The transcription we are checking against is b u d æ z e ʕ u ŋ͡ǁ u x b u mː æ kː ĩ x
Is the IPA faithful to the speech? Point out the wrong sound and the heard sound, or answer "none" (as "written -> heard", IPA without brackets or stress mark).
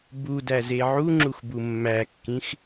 none